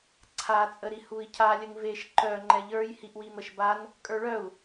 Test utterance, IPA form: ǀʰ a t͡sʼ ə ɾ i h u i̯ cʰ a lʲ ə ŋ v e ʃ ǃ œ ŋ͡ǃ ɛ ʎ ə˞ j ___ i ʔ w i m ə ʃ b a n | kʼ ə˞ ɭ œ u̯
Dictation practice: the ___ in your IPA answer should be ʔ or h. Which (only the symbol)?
h